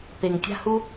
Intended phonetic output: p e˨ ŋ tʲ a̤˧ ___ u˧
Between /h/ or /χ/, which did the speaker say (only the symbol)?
h